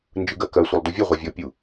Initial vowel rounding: unrounded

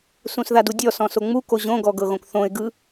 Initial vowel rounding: rounded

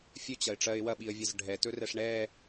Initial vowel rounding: rounded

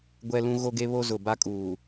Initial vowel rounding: unrounded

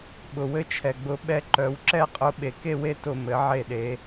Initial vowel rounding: rounded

